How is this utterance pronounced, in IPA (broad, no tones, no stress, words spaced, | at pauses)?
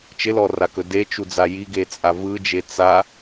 t͡ʃɪlɔrakɵ det͡ʃud͡za jiɡet͡sʼa vɯd͡ʒe t͡sa